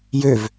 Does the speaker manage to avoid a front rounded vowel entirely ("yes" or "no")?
no